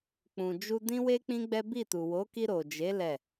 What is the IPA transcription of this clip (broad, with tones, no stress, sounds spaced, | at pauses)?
k͡p ũ˨ d͡ʒ u˧ d ĩ˦ w e˦ k͡p ĩ˦ ɡ͡b ɛ˦ b i˦˨ t u˨ w o˨˦ k i˧ ɾ o˨ d͡ʒ e˨˦ l ɛ˦˨